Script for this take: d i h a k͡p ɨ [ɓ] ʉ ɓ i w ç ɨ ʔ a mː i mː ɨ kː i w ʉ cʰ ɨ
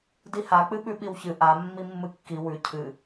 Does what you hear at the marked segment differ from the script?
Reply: no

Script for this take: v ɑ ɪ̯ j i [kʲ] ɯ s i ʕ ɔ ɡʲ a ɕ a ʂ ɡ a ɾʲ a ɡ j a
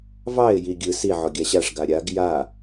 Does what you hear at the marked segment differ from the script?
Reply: yes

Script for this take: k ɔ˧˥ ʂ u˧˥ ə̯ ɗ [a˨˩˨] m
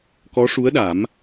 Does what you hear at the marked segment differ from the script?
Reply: yes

